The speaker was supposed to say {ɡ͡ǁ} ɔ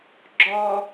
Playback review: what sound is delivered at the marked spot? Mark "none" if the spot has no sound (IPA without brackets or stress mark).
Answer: ɡ͡ǁ